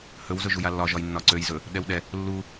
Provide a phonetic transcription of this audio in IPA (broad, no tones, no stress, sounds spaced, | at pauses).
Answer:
h ɵ w z ɵ ʒ u j a lː ɒ ʒ ɒ j nː ɒ ǀ ø j z ɵ | ɗ ɛ w ɗ ɛ | lː u